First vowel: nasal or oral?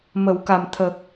oral